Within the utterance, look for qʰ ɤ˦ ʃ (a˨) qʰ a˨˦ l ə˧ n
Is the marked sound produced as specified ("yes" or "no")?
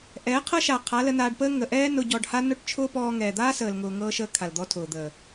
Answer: yes